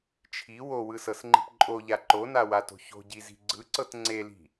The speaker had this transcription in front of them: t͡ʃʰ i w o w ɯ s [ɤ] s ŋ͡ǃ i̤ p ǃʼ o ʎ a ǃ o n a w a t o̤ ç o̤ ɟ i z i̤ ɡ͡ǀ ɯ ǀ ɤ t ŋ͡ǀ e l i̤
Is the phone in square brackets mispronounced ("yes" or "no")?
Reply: no